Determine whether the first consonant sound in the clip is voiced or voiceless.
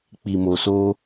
voiceless